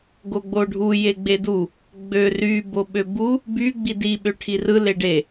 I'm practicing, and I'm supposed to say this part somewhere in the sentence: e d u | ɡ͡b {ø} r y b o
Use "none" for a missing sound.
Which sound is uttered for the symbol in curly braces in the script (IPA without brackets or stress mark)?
ø